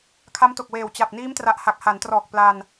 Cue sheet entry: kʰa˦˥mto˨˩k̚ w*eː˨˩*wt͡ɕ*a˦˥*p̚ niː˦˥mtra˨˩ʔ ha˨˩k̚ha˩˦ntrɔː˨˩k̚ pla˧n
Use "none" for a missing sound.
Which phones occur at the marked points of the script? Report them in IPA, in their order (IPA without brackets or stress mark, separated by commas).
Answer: eː˨˩, a˨˩